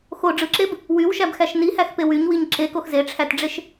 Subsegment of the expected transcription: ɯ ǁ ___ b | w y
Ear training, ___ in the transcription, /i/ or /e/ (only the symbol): e